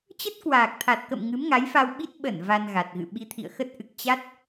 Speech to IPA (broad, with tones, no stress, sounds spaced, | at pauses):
t͡ɕ ə˦˥ t̚ k w aː˨˩ k̚ t̪ʰ a˨˩ t̚ k ə̰˧˨ m ŋ ɨ˨˦ m ŋ a˨˦ j f a˧ w ɓ i˦˥ t̚ ɓ ə˧˩ n v a˧ n ɣ a˨˩ t̚ ɣ ɨ̰˧˨ ɓ i˨˦ t̪ʰ ḭ˧˨ ə̯ x ə˦˥ t̚ ʔ ɨ˨˩ k̚ t͡ɕ a˦˥ t̚